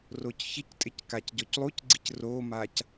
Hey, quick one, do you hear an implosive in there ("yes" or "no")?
no